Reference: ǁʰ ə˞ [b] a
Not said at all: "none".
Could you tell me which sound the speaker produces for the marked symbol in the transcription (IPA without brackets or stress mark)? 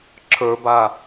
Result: b